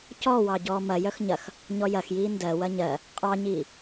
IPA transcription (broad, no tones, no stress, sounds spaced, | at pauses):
c ɔ w ɑ ɟ ɔː m ɐ j œ x ɲ ɐ x | ɲ ɔ j ɐ x j iː n d ɜ w ɐ ɲ ɜ | qʼ ɑ ɲ iː